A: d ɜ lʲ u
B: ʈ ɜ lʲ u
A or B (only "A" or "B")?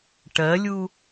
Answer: B